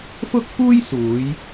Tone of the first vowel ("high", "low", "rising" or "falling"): high